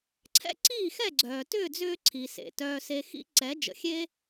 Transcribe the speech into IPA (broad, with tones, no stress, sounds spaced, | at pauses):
ǀʰ ɛ̰˥ ǀ iː˥˩ x ɛ˥˩ ɡ͡ǀ œː˩ t ʏː˥˩ d͡z ʏː˧ ǀʰ i˩ s ḛ˩ t œː˧ s e˧ x ḭ˥ ǀ ɛ˩˥ d͡ʒ ə̰˩ xʲ e˥